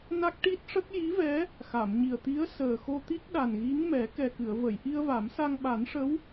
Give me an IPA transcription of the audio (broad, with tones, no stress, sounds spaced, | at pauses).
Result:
n a˦˥ k̚ ʈ i˦˥ t̚ ʂ ə˦˥ k̚ j i˧˥ v ɛ˧˥ | x a˨˩˨ m ɲ i˨˩ ə̯ t̪ i˧˥ ə̯ s əː˨˩ x o˧ t̪ i˦˥ k̚ ɗ a˨˩ n ɣ i˧˥ ŋ m ɛ˨˩˦ k ɛ˨˩ k ɨ˨˩˨ ə̯ v ə˨˩˨ j ʔ i˧ ə̯ v a˨˩˦ m s a˧ ŋ ɓ a˨˩˦ n ʂ ə˧˥ w